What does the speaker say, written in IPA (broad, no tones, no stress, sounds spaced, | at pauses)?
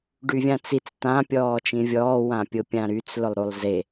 ɖ y vʲ ã t͡s i t͡s t̪ ã pʲ ɔː t͡ʃ ĩ vʲ ɔː w ã pʲ ʊ pʲ ã ɾ y t͡s l ʊ lˠ ɾ u lˠ z e